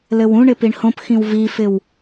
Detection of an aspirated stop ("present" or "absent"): absent